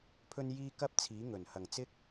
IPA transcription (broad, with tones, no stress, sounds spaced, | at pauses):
pʰ ɵ˧ n j iː˧ k ɐ˥ p̚ t͡sʰ iː˨˥ ŋ ɵ˨˩ n h ɐ˨˩ ŋ t͡s ɪ˥ k̚